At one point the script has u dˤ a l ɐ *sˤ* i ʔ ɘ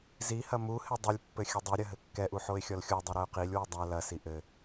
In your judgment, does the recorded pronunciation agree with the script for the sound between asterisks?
no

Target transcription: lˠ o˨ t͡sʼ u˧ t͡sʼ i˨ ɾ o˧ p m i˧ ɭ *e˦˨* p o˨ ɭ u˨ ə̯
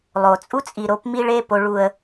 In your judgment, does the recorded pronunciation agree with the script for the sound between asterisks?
yes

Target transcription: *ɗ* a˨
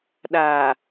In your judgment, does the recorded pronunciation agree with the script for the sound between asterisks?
yes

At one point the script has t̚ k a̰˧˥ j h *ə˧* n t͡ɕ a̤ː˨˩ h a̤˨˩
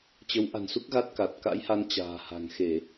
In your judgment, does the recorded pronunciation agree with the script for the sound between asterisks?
no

